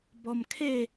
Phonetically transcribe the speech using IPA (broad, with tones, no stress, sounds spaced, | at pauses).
b ɔ˧ m kʰ e˥˧